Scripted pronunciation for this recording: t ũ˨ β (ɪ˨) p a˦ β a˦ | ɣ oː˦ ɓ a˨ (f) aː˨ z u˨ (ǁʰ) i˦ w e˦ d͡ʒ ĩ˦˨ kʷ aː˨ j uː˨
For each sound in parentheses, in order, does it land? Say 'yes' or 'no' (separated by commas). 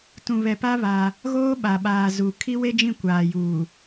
no, no, no